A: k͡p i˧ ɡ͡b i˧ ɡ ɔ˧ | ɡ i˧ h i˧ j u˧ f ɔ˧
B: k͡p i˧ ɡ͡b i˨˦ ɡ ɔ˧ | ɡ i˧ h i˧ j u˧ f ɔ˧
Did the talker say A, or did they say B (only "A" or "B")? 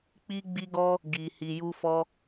A